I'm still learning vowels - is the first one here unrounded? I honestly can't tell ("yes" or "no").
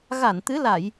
yes